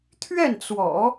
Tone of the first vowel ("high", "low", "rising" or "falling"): falling